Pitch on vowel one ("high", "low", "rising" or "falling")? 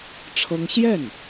high